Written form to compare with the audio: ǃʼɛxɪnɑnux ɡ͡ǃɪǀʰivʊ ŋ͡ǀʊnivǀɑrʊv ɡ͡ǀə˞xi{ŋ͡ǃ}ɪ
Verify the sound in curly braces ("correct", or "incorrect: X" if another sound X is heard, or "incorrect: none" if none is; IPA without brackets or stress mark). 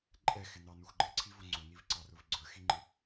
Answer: correct